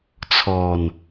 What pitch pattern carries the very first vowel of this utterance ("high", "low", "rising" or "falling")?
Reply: low